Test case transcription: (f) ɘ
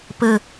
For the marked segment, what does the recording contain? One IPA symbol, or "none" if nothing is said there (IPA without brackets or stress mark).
p